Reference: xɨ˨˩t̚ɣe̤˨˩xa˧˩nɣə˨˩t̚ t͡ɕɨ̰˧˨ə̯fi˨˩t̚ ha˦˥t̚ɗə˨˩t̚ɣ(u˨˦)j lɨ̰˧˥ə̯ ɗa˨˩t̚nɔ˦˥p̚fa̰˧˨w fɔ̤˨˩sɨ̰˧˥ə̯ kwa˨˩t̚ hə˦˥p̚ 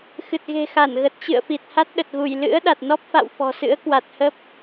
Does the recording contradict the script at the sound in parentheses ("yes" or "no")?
yes